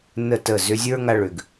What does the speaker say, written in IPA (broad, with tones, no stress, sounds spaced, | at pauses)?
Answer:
n ə˦˨ t ə˦˨ z ʏ˧ zʲ ə˞˦ ŋ a˧ ɭ ʏ˨ ɡ